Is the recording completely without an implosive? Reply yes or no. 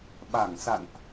no